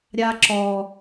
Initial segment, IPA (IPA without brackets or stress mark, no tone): ɾʲ